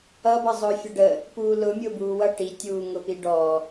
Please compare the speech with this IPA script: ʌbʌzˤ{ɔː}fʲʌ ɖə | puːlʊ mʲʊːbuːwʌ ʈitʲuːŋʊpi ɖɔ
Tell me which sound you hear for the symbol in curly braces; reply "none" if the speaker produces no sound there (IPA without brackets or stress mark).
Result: ʊː